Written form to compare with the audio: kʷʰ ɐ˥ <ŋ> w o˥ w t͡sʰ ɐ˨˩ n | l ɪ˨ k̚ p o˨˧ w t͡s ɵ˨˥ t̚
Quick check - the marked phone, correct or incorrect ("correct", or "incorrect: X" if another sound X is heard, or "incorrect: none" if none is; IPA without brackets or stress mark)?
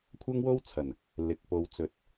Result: correct